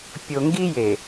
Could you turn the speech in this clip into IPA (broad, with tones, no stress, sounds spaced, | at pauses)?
pʲ o˨ ŋ ɡ i˦ j e˨